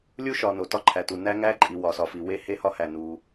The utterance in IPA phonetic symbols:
lʲu˦ʃɒ˨ no˨tɒ˦ǃʰæ˨tu˨ næ˦ŋæ˦ǃʼi˨ wɒ˨sɒ˨fi˨ we˦he˦hɒ˦ hæ˨nu˨

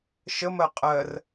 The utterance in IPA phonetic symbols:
ʃəmɜ qʼɜr

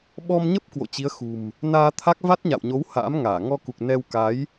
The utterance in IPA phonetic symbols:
ɓɔ˧mɲə˦˥p̚ kwo̰˧˨t͡ɕi˨˦ə̯xṳ˨˩m | naː˧t̪ʰa˦˥k̚ va˦˥t̚ɲa̰˧˨wɲo˨˦w ha̰ː˧˥mŋaː˧˩ ŋɔ˧ku˨˩k̚nɛ˧wka˨˦j

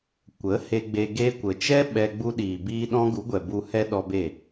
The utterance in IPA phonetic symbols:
kʷə˨˦ he˧ɡ͡be˧ ɡe˧kʷə˨t͡ʃɛ˦ ɓɛ˧ɡ͡bu˦ ɗiː˨biː˧ ɗɔ̃˦ɡu˨˦ɡʷɛ˨ bu˧ hɛ˦ ɗɔ˧be˦˨

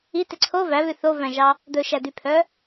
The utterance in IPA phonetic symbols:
ite ǀʰo væβʉ θovæ̃ʒɑ | d̪ɵʃæd̪ypʰœ

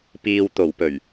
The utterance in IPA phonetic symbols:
piː˨wt̪o˨˩wpɵ˨˩ɥ

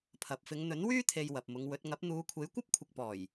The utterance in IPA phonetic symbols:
pʰɐ˨p̚fɪ˨˧ŋ n̪ɵ˨˥nwyː˥t̪ʰe˨j wɐ˨p̚mʊ˨˧ŋwɵ˨˥t̚ ŋɐ˨˥p̚n̪uː˨˧kʷʰe˨˥j kʷɐ˥p̚kʷʰɪ˨k̚pɔː˨˩j

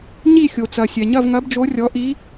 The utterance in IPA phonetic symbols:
ɲi˥˧ xʲo˨t͡sɐ˨sʲɛ˨ ɲɐ˥˧vŋɐ˧˥bd͡ʒo˧˥ rʲɔ˧˥ ʔi˧˥

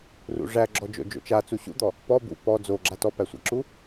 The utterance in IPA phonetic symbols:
rṵʐæɡ͡ǁɔ d͡ʒo̰d͡ʒo̰t͡ʃa t͡suɕṵd̪ɔ | pɔ bṵ pɔ d͡zoɡ͡ǁa tɔpæsʷæ̰ǁu

